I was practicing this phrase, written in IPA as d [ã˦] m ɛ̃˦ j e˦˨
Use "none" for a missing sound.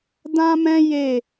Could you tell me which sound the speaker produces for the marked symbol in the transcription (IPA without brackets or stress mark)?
ã˦